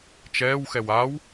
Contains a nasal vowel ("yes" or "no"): no